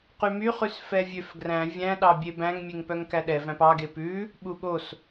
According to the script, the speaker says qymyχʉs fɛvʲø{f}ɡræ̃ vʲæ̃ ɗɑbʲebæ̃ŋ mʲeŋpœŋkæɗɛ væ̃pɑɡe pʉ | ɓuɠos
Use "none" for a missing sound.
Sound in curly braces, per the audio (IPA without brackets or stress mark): f